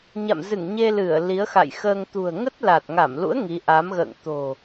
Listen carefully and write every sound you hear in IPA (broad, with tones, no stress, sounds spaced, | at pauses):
ɲ a̰˧˨ m z ɨ˧˩ ŋ ɲ e˧ l ɨ˧˩ ə̯ l i˨˦ ə̯ x a̰˧˨ j x əː˧ ŋ t̪ ṳ˨˩ ə̯ ŋ ə˦˥ t̚ l a˨˩ t̚ ŋ a˧˩ m l ṵ˧˥ ə̯ ŋ i˨˦ ʔ a˨˦ m ɣ ə̰ː˧˨ ŋ t̪ o̤˨˩